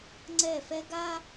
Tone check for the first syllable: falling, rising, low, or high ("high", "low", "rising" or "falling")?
falling